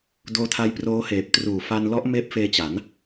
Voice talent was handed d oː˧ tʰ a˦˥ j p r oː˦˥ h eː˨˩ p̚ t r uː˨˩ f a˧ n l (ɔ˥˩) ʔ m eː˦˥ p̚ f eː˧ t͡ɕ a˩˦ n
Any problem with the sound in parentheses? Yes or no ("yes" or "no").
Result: yes